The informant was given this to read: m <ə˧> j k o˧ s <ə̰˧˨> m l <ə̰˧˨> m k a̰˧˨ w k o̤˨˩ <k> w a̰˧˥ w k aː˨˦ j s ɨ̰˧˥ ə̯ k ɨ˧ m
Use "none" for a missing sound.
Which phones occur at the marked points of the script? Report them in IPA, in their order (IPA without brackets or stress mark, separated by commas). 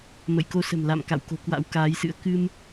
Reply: ə̰˧˨, ə̤˨˩, a̰˧˨, k